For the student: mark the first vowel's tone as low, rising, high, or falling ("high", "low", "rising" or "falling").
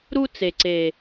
high